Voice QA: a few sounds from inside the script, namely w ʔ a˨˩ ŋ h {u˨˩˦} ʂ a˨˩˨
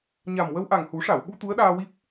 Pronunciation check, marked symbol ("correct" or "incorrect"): correct